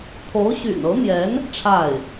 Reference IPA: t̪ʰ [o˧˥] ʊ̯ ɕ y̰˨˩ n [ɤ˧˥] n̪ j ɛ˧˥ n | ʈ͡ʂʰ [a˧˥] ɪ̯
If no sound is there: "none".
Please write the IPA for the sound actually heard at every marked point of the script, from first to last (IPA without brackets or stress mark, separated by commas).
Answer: o˧˥, ɤ˧˥, a˥˩